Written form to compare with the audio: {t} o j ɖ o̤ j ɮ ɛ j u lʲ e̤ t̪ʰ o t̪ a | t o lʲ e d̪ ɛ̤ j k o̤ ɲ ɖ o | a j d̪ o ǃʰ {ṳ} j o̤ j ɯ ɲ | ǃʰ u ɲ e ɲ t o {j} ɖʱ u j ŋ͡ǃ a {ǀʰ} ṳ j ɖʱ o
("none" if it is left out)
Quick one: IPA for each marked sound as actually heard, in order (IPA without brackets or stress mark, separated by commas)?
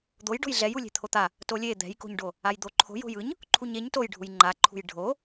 d̪, o̤, j, ǃʰ